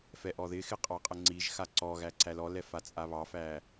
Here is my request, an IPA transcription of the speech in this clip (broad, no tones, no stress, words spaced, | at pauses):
fɛʔɔðɪxɪ qʼɑqʼəŋ͡ǀiʒxa ǀɔɣæ ǀælɔlɛ fat͡sʼaβɑfæ